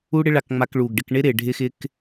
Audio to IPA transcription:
u˦ɽɪ˦ ɭa˧kŋ͡ma˧kɭu˨ɡɖɪ˦˨k ɳɪ˦ɾɪ˨ ɖʱɪ˦xɪ˦k

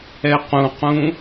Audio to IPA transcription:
ɛqũqũ

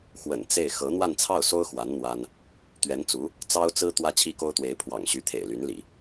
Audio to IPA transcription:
xwə̰˨˩n t͡se˥˩ɪ̯ xɤ˧˥n̪wa˥˧nt͡sʰɑ˥˩ʊ̯so˥ʊ̯ xwa˧˥n n̪wa˥n | t̪ɥɛ˧˥nt͡su˧˥ | t͡sɑ˥ʊ̯t͡sɹ̩˥ t̪wä˥t͡ɕʰi˥ko˥ʊ̯t̪we˧˥ɪ̯ pʰwɑ̰˨˩ŋɕy˧˥t̪ʰḛ˨˩ɪ̯ ly˧˥nlḭ˨˩˦

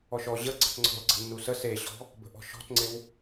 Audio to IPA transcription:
ɔʃɔ ʑə ɡ͡ǀə̤tŋ͡ǀɔ̤lɡ͡ǀə̤ nːusəs eɕɔ̤ | bə̤ʔɔ̤ʃɔ̤tŋ͡ǀɪw

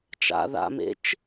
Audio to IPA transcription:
t͡ʃa̰ ða̰mḛt͡ʃ

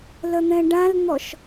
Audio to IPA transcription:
lən̪ɛ̃ɖãln̪ɔʃ

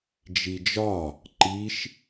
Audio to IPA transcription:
d͡ʒid͡ʒɒ | ǃiʃ

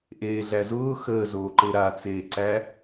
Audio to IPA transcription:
ʔeːɮæzʊː xəːzoːǃe ɾat͡seː ǀæ

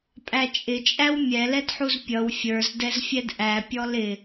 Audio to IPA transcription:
pʼæt͡ʃʼɪt͡ʃʼæw mʲɛlɛdħuz pʲʌw fʲə˞zdɛzfʲɛd ʔæpʲɔl ɪ

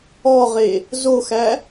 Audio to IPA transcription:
ɔʁe | zoxæ

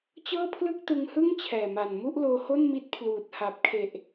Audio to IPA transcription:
t͡ɕɤː˥˩pʰlɯ˥˩k̚tɯ˧ŋhɯ˥˩ŋ t͡ɕʰɛː˨˩ma˨˩n mu˥˩ʔloː˧ho˥˩nmi˦˥t̚ pʰluː˨˩t̚ha˨˩p̚kʰe˨˩ʔ

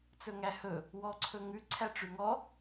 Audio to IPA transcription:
t͡sɵŋæhɵ | wɔǀʰɵŋʉ ǀʰæʈ͡ʂʉŋɔ

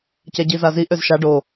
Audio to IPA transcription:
cɛɟizazi ʔøzʃa ɖo

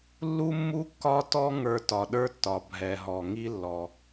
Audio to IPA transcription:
lːu˥mːu˥kːɒ˥tɔ˥ ŋə˞˧tɒ˩ɗə˞˥tːɒ˩ bʱɛ˩ɦɔ˩ ŋi˧lːɔ˩

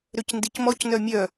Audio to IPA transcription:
ɾøcndicmɔcnœ mʲœ

